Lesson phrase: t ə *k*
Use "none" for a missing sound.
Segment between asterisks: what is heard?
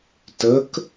k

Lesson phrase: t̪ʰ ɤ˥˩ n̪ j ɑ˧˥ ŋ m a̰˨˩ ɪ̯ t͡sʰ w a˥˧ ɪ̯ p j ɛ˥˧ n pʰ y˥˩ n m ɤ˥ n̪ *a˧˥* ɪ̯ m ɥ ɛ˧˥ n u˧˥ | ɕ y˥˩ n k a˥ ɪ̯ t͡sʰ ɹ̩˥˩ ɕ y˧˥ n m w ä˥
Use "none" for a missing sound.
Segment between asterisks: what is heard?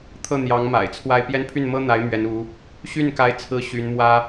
a˧˥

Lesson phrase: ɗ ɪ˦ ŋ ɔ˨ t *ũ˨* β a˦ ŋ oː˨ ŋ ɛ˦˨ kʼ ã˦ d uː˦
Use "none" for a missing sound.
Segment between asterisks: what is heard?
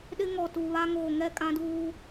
u˨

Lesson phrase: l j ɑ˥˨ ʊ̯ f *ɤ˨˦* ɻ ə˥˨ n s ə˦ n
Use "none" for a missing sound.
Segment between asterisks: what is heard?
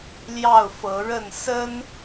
ɤ˨˦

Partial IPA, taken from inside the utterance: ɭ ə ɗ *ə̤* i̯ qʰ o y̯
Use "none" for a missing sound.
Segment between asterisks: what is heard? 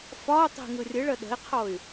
ə̤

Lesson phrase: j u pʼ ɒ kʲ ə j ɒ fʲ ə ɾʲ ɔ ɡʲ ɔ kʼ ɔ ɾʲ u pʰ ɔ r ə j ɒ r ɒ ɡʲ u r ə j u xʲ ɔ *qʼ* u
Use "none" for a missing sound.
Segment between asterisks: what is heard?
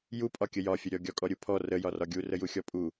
pʼ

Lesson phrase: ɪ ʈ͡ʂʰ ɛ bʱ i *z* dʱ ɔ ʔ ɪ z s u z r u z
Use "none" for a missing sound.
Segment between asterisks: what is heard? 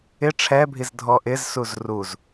z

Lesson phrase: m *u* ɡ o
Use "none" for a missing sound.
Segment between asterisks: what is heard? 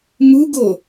u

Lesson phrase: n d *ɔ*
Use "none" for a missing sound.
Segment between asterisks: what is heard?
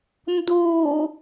o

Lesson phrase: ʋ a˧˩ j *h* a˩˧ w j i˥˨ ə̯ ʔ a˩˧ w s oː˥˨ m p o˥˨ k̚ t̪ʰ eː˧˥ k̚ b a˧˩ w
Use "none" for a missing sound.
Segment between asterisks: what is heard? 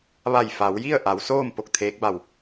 f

